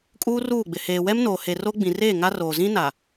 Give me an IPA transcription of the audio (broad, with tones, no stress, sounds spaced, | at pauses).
kʼ uː˦ r uː˦˨ ɡ͡b ɪ˨ h eː˨ w ɛ˦ m n oː˨ h e˨ r o˦ ɡ͡b ĩ˨ r eː˦˨ ŋ a˦ r oː˨ z ĩ˦ n a˨